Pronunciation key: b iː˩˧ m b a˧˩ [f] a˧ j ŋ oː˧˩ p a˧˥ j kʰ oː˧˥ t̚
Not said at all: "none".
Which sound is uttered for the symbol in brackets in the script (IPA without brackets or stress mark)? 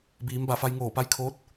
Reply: f